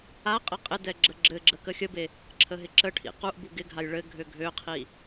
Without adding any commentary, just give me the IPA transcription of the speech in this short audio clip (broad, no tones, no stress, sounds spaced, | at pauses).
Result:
a qʼ ə qʼ ɪ d ɛ ɡ͡ǁ ə ɡ͡ǁ ɘ ɡ͡ǁ ə k ə xʲ ə b e | ǁʰ ə ɦ ɪ ǁ ə ʈʰ ḭ q u ʔ b u ɡ ɪ ɡʱ a j ɭ ɘ ɡʱ ø ɡʱ ø qʰ i